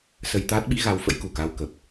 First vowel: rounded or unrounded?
unrounded